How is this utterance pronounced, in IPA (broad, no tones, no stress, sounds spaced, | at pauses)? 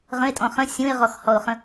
ʁ ə̃ ɪ̯ tʼ ɔ̃ χ ə̃ sʲ ũ ɪ̯ ʁ ɔ x h ɔ ʊ̯ χ ə̃